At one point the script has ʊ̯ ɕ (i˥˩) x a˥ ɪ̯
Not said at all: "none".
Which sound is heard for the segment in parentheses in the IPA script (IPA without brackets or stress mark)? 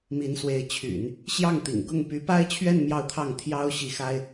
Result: i˥˩